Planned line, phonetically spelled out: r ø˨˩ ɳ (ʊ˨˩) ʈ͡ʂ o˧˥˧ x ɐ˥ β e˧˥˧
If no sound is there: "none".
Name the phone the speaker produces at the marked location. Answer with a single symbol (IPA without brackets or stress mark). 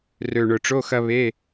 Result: ʊ˨˩